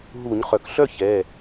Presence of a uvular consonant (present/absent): present